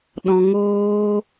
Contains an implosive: yes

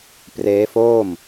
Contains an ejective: no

